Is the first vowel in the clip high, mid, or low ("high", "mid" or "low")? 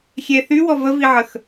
mid